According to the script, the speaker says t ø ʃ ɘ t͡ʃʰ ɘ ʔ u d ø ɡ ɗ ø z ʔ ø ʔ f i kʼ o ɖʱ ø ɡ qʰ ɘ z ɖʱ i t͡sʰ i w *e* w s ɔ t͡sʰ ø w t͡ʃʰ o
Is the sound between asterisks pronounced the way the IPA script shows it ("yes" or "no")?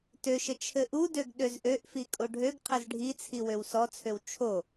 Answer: no